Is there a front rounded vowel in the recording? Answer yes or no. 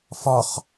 no